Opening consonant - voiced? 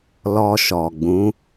yes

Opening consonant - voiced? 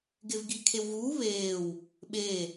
yes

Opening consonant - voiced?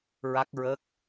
yes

